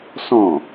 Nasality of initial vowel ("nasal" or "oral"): nasal